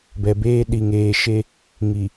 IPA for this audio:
b ɛ˨ b eː˦ ɗ i˨ ŋ eː˨ ʃ e˦ | ŋ i˨

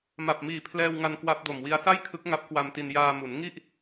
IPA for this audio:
m a˨˩ p̚ m iː˨˩ pʰ l ɛː˧ w ŋ a˧ n k w a˦˥ p̚ d o˨˩ m w i˦˥ a̯ s a˥˩ j kʰ ɯ˦˥ k̚ ŋ a˦˥ p̚ k w a˧ m t i˧ n j aː˧ m u˩˦ n ŋ i˥˩ ʔ

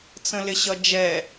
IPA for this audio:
t͡s ə̃ l ɪ ɕ ʌ d͡ʒ ɛ

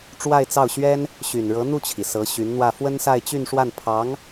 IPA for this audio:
ʈ͡ʂ w a˥˧ ɪ̯ t͡s ɑ˥˩ ʊ̯ ɕ ɥ ɛ˥ n | ɕ y˨˩ n ɻ ɤ˧˥ n̪ u˥˩ t͡ɕʰ i˩ s ɤ˧˥ ɕ y˧˥ n n̪ w ä˥˩ f w ə˥ n s a˥˧ ɪ̯ t͡ɕ y˥˧ n ʂ w a˥˩ n pʰ ɑ˧˥ ŋ

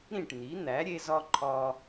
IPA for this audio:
ɾ ĩ˥˩ ʈ n̪ i˩˥ n̪ æ˩˥ ɾʲ e˧ z ɒ˧ ǃʰ ɒ˧

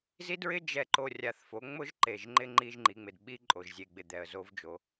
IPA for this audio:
z i˦ d ɹ ɪ˦ d͡ʒ ɛ˨ ǃ o˨ rʲ a˨ θ f o˨˦ ŋ͡m ʊ˦ ʒ ǃ e˨ ʒ ŋ͡ǃ ɪ˦ ŋ͡ǃ i˦ ʒ ŋ͡ǃ i˨˦ ŋ͡m ɪ˨ d ɓ i˦ ǃʼ o˨ ʒ zʲ e˨ ɡ͡b ɪ˨ d̪ ɛ˨ ə̯ z o˦ v d͡ʒ o˨˦

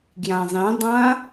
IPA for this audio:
ɡ j ã zˤ ĩ dˤ ã

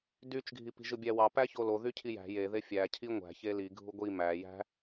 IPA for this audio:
d y t͡ʃ ɡʱ i p i̤ ʒ ɯ bʲ æ w ɑ p æ ç o l o ð y cʰ i j æ̤ j e ð e fʲ æ cʰ i ŋʷ æ̤ ç e l i ɡʱ u ɡʷ i m æ j æ̤

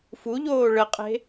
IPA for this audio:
f u ʎ oː ɭ ə qʼ e̤

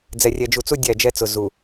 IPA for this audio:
d͡z ɛ˨ rʲ ɛ˨ d͡ʒ u˨ t͡s u˦ dʲ æ˦˨ d͡ʒ ɛ˦ t͡s ʊ˨ z u˨

